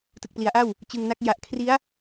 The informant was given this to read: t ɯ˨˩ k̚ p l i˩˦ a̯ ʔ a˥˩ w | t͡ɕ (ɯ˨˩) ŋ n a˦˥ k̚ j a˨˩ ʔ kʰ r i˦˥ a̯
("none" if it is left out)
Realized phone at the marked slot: ɯ˧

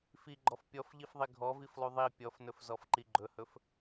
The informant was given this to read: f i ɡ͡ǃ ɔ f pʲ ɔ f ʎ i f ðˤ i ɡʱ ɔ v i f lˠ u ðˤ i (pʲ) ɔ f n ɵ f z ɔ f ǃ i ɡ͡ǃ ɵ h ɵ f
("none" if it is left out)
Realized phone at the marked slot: pʲ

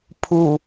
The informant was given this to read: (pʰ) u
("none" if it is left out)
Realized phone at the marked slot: pʰ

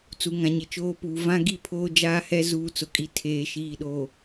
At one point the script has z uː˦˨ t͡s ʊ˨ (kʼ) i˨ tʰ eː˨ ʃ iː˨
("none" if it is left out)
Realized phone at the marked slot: kʼ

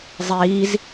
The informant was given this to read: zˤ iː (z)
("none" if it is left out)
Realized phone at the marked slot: z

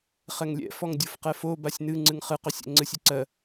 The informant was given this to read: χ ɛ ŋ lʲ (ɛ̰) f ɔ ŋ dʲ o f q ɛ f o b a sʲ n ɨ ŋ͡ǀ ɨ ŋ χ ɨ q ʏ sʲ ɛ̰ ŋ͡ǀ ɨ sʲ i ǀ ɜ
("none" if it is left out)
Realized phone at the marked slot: ɛ̰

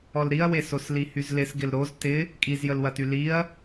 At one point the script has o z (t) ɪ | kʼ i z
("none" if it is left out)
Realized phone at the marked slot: t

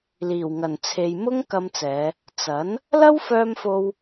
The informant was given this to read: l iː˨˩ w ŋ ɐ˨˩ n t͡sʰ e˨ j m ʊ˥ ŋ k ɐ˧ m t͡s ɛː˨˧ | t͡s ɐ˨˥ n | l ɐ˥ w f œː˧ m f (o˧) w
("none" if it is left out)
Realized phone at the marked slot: o˧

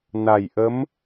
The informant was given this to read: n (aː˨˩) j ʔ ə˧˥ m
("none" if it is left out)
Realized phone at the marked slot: a˨˩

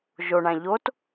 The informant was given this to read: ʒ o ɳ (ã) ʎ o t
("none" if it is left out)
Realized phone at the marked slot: ã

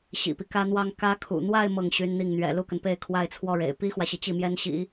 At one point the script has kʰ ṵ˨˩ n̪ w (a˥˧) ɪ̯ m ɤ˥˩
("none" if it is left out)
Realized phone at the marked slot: a˥˧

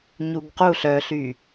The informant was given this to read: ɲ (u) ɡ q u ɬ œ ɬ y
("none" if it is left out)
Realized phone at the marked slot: u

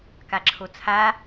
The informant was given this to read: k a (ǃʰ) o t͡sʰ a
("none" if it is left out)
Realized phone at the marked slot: ǁʰ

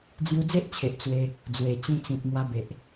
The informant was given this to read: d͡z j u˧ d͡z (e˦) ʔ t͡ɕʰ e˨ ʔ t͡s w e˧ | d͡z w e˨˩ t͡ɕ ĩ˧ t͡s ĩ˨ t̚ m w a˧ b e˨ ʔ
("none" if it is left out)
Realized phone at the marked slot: e˦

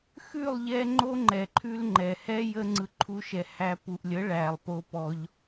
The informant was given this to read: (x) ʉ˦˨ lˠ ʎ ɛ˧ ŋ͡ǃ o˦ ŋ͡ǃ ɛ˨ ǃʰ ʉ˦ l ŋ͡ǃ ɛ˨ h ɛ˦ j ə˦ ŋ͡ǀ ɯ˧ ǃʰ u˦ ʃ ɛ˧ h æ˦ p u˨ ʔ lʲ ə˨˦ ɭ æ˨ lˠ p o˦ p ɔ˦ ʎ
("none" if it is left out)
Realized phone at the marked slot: x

